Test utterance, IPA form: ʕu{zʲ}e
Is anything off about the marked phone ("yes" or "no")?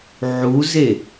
yes